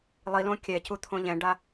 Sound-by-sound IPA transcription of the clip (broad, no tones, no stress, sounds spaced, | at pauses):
lˠ i l õ kʲ ɛ c u t̪ʰ õ ʎ ɛ̃ ɖ a